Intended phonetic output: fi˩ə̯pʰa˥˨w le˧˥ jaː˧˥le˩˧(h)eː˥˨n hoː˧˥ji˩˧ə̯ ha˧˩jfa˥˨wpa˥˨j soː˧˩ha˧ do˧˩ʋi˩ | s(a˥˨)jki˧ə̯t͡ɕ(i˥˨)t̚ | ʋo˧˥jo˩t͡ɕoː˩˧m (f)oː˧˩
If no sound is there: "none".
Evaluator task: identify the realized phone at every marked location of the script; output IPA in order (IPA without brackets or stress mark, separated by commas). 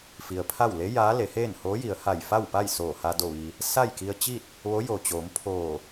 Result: h, a˥˨, i˥˨, pʰ